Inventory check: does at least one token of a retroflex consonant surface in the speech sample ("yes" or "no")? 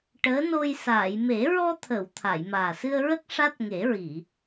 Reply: yes